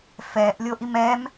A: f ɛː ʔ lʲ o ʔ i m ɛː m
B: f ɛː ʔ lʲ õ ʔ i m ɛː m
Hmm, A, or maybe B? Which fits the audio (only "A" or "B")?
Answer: A